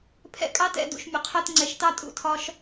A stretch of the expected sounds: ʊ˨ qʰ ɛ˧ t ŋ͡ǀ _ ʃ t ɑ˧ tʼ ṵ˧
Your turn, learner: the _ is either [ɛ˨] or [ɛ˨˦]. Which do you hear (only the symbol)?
ɛ˨